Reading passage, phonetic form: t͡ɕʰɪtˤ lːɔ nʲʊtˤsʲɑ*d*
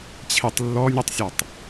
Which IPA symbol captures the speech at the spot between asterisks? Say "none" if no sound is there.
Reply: tˤ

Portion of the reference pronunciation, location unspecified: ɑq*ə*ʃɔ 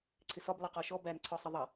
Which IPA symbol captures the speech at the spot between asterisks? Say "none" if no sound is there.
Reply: ɔ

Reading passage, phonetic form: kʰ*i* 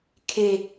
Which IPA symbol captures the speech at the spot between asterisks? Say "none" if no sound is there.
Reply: e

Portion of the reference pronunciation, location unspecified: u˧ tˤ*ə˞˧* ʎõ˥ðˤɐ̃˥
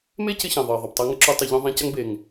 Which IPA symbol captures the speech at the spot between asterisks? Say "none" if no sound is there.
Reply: ɐ˧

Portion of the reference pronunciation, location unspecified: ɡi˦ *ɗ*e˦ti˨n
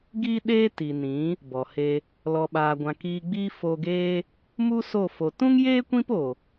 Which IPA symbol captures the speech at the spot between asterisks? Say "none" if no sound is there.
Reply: ɗ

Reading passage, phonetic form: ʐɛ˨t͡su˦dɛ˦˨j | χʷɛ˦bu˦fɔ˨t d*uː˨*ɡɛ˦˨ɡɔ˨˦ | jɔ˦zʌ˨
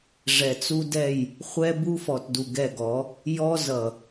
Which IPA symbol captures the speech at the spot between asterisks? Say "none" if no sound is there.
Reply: u˨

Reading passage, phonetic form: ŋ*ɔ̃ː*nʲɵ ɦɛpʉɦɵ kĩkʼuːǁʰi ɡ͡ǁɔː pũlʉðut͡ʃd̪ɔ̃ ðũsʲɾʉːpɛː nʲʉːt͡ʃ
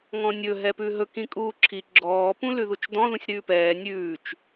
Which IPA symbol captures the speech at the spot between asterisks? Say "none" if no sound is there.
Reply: ɔ̃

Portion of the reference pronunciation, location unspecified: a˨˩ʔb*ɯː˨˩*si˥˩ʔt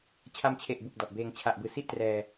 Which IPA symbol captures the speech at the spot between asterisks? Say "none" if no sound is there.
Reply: ɯː˨˩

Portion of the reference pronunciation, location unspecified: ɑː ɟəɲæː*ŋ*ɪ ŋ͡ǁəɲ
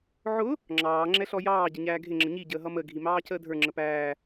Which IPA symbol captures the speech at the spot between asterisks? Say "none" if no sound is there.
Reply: ɡʱ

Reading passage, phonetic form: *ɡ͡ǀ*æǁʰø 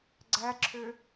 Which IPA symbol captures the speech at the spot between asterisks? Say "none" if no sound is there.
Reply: ɡ͡ǀ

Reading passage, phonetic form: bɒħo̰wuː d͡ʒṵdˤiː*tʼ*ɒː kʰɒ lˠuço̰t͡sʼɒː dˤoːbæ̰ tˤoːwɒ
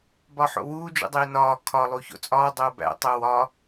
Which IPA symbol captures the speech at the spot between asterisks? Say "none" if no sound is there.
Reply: n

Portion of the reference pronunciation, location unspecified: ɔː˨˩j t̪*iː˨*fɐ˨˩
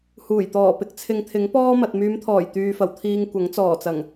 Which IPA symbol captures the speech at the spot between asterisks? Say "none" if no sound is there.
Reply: yː˨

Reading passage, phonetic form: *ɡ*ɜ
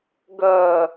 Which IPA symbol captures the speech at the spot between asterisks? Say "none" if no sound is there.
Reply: ɡ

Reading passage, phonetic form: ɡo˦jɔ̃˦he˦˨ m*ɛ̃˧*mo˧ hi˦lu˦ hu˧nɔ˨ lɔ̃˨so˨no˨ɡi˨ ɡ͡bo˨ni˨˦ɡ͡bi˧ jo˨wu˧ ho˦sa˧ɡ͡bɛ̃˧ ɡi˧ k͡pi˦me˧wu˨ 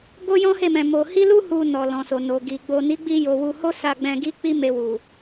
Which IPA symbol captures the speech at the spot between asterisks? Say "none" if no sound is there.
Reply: ɛ̃˧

